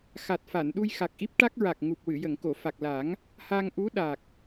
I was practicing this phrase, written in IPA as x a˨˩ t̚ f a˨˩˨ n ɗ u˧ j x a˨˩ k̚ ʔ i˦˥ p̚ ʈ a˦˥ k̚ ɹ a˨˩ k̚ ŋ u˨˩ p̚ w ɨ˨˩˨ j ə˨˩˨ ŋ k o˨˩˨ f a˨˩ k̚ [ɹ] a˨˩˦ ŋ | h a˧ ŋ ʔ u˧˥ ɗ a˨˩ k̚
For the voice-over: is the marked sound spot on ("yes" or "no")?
no